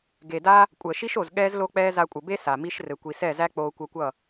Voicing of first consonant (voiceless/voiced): voiced